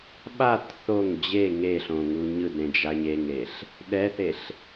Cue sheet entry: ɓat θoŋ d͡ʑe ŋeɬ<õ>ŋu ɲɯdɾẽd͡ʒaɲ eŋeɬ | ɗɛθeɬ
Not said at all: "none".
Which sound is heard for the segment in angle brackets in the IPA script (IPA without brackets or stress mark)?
õ